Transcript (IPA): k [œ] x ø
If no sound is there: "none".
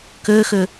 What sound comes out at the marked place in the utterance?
ø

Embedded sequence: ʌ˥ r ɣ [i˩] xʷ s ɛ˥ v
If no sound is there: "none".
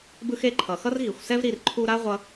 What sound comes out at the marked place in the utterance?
i˩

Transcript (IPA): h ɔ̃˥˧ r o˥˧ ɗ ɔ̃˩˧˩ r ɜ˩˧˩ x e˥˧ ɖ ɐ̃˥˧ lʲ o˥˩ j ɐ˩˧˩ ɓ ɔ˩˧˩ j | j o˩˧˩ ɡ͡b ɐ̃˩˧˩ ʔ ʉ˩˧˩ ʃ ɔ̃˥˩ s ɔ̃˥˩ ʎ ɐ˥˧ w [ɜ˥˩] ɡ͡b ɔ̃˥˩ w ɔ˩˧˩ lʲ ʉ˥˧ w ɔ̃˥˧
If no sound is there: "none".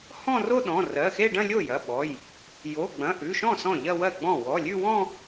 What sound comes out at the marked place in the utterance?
ɜ˥˩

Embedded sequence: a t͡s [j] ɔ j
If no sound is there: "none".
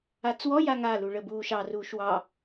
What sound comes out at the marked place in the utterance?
w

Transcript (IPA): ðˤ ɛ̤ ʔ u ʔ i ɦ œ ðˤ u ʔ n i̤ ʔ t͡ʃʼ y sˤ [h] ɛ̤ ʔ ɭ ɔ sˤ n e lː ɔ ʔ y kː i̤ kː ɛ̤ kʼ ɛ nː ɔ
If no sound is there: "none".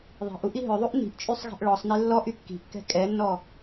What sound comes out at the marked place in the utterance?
ɣ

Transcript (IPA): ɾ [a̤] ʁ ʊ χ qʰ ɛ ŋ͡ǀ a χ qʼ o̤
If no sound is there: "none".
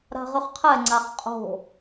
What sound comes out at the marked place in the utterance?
a̤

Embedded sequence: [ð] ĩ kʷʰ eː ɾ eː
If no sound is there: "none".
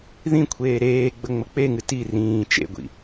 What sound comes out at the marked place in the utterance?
ð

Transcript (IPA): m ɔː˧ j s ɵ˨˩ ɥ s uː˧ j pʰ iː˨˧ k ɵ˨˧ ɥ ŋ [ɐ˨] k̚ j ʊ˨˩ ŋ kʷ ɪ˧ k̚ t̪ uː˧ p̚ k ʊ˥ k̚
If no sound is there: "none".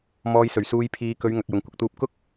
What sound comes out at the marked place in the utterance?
ɐ˨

